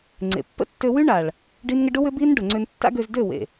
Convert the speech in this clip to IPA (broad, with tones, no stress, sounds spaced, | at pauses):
ŋ͡ǀ ḛ˨ pː ə̰˦ tː ø˧ w y˦ ɳ a˨ ɭ | ɖ i˦ n ŋ ə˦ ɖ ʊ˦ w ʏ˦ b i˦ n ɖ ʊ˨ ŋ͡ǀ ʏ˧ n tː a̰˦ ɡ ø˧ z d ø˦˨ w ḛ˨